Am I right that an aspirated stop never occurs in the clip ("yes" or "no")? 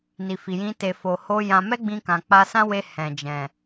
yes